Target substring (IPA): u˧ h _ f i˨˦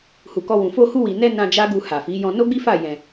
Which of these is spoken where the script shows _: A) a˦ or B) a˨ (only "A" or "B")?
B